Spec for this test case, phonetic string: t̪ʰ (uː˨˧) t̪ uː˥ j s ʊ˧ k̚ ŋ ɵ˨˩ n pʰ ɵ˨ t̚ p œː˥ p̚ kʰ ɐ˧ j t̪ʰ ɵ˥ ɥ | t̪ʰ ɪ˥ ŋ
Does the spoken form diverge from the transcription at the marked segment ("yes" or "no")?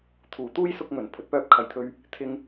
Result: yes